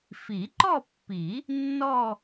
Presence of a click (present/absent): present